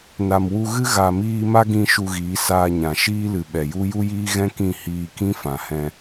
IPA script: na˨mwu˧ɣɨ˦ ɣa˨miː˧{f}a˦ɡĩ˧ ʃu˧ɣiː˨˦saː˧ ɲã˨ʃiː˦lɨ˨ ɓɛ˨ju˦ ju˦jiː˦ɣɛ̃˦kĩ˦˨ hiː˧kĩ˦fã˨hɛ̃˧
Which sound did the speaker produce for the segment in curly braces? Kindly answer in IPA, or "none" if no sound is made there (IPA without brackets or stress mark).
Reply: m